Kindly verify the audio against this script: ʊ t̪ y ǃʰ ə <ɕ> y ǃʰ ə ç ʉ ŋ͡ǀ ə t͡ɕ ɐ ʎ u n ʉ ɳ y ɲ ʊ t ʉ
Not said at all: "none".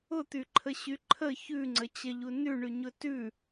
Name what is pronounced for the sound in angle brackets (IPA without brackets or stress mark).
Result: ɕ